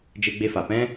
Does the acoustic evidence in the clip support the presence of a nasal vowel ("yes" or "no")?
yes